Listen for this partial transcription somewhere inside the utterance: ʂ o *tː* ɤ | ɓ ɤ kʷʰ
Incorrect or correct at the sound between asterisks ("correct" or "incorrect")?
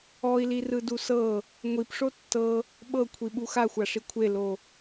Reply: correct